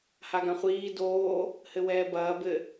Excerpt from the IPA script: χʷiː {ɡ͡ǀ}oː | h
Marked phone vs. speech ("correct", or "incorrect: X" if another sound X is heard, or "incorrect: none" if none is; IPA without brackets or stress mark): incorrect: d